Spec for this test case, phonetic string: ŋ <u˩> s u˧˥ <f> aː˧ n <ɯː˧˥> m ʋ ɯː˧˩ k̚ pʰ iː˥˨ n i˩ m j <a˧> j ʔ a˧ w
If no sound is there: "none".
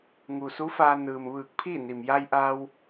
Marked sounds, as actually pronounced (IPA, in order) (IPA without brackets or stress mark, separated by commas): u˩, f, ɯː˩, a˧